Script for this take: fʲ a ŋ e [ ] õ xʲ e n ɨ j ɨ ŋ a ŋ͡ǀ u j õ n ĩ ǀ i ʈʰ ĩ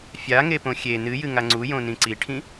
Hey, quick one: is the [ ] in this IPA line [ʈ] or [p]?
p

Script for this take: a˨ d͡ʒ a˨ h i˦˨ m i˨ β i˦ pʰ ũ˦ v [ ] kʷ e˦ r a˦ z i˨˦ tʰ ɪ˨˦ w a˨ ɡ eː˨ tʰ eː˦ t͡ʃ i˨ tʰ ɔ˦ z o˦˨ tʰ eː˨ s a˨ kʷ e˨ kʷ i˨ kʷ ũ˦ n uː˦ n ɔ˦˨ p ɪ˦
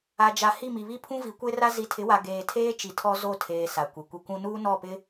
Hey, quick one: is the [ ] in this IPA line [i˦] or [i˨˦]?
i˨˦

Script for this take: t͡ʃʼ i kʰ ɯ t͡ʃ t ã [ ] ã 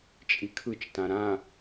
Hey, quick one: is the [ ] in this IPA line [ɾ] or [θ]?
ɾ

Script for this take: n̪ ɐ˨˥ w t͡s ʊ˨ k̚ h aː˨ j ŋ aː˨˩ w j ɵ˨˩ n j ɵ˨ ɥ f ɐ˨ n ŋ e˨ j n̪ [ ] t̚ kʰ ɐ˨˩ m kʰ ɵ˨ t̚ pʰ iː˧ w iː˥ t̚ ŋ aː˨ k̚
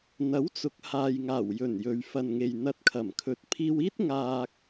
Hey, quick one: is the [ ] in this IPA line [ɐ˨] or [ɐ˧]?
ɐ˧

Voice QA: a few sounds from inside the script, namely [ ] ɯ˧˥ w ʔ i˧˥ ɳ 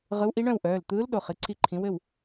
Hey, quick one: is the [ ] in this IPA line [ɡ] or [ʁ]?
ʁ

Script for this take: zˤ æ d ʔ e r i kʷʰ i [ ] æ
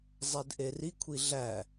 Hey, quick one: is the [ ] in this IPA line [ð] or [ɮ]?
ɮ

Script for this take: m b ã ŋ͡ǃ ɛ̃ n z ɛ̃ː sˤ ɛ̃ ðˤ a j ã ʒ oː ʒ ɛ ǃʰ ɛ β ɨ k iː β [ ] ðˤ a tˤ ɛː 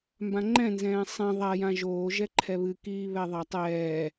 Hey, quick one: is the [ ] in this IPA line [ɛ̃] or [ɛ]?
ɛ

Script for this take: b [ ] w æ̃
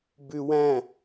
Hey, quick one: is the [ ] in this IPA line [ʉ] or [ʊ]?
ʉ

